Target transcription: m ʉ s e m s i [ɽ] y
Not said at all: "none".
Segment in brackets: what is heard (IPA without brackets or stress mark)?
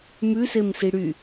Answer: ɽ